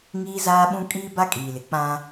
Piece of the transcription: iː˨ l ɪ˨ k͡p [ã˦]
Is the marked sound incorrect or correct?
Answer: correct